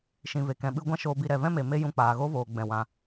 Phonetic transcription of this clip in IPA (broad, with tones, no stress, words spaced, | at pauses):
ʃĩ˨ve˨kɛ̃˨ ɓɨ˦ ɡʷã˦ʃoː˧bi˧ ɾɛ˨vɛ̃˦me˨ me˦ jũ˧k͡paː˨ɣo˦voː˨ ɡ͡bɛ̃˨wã˨